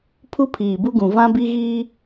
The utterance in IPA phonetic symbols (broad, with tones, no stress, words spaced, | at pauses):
pʰu˦pʰiː˨bu˦ɡũ˨ vã˦bi˦ɣiː˦